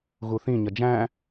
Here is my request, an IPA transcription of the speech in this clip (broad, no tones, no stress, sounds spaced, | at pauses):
ɣ u θ ĩ ɲ ʌ d͡ʒ æ̃